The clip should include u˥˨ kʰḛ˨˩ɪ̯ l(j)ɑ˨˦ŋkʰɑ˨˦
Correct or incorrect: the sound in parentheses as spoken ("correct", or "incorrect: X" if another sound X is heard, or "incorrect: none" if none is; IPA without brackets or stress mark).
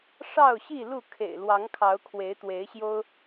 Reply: incorrect: w